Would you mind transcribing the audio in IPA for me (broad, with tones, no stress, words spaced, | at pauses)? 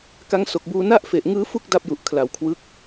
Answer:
ka˦˥ŋso˨˩k̚buː˧ na˥˩ʔfe˨˩ʔ ŋɯː˦˥fu˥˩k̚ da˥˩p̚ju˨˩ʔ kʰla˩˦wkʰwɯ˦˥k̚